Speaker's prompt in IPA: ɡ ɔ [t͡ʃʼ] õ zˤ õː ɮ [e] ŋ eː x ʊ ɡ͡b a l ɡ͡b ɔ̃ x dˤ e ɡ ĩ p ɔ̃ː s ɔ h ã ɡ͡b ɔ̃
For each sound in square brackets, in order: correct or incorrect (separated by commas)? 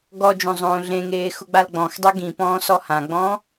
incorrect, incorrect